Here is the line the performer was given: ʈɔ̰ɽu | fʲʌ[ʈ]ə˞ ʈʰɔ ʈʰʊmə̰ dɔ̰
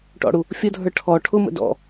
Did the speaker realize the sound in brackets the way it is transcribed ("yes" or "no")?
no